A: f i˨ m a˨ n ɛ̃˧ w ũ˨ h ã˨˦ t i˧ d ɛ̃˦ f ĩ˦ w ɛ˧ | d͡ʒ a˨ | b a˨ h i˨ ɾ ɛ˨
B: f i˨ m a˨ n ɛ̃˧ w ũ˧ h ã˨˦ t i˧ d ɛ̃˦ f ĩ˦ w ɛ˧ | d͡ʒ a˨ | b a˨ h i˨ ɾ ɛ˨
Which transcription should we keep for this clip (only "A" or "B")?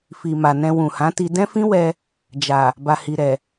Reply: A